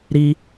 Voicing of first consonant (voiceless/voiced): voiced